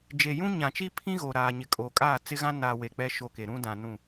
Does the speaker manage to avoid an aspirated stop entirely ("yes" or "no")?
no